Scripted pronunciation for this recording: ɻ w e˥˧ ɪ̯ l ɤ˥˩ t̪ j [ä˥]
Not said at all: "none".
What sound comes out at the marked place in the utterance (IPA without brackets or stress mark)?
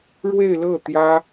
ä˥